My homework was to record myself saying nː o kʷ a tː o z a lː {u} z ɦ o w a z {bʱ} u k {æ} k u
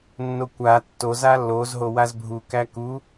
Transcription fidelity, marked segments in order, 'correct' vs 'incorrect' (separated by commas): incorrect, correct, correct